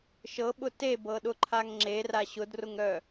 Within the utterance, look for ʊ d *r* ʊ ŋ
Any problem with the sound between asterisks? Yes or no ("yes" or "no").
no